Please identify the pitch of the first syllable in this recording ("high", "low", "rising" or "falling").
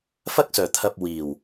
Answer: high